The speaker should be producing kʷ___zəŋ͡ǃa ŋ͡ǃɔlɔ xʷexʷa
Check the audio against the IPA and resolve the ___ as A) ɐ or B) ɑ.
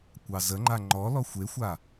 B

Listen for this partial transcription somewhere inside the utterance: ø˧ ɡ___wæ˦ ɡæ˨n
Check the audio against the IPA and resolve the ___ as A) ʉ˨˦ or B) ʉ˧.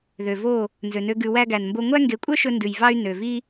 B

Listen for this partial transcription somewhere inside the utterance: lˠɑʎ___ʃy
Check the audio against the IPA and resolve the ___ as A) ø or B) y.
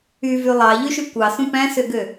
B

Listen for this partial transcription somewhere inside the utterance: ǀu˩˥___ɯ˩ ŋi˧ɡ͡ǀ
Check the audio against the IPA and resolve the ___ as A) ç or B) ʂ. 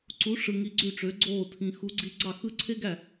B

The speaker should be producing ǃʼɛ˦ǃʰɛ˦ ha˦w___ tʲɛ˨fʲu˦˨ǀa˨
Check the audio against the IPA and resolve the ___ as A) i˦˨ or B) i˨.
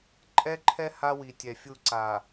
B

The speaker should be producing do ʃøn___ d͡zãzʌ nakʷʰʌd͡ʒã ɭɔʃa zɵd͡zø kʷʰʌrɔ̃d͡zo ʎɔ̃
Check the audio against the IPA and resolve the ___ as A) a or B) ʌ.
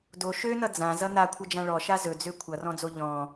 B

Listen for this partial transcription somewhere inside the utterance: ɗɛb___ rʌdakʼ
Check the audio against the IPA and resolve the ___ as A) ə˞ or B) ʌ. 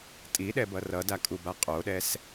B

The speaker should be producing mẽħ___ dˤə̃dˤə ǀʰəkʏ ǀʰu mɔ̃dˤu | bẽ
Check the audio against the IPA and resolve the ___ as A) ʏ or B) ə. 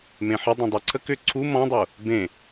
B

